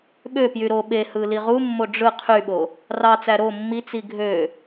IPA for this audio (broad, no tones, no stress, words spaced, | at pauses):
ɓøpjy ɾo ɓehɯ liʁumːo ɖ͡ʐɯ qʰyɓo | rɑt͡sæ ɾo mːit͡si ɡʱø